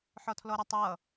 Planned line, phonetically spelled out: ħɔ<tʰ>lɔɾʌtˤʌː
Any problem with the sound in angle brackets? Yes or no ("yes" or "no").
no